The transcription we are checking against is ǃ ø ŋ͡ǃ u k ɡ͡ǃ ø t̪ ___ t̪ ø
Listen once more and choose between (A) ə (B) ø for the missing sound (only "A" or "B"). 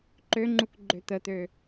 A